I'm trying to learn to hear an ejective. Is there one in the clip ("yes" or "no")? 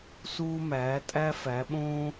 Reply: yes